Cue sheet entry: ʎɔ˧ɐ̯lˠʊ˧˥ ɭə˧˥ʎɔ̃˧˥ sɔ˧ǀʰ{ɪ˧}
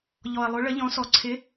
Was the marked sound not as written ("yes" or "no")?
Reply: yes